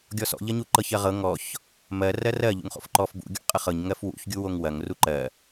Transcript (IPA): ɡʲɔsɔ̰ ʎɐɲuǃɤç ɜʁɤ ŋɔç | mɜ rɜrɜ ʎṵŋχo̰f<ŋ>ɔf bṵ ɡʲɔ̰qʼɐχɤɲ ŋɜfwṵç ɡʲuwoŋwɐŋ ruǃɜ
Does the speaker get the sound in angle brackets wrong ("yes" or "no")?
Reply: yes